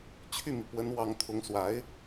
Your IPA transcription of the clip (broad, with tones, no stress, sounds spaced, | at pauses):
t͡ɕʰ y˥˩ m i˩ p w ə˧˥ n w ɑ˧˥ ŋ t̪ʰ ʊ˧˥ ŋ s w a˧˥ ɪ̯